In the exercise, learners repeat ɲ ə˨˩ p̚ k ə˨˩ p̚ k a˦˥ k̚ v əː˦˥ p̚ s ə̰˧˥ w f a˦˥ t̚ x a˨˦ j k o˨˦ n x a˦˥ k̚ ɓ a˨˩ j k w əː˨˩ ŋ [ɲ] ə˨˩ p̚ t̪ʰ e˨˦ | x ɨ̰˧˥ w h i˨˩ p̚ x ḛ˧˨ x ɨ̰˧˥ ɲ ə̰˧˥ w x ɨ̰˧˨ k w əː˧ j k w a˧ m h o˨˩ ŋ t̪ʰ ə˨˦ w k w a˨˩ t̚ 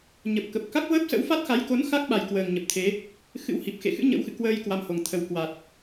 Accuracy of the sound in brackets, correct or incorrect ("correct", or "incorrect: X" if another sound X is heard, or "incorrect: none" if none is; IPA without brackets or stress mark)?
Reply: correct